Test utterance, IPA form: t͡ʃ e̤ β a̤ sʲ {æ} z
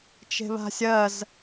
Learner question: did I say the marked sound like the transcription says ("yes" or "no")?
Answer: no